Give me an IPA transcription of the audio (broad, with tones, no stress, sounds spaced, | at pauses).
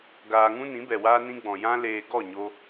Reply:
ɡ aː˧ ŋ ũ˦ n ĩ˨˦ b ɛ˨ w aː˦ n ĩ˧ ɡ͡b ɔ̃˨ j ã˦ l eː˧ ɡ ɔ˦˨ ɲ o˧